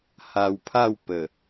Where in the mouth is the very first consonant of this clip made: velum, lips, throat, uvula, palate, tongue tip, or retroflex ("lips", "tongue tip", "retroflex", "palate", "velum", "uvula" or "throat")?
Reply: throat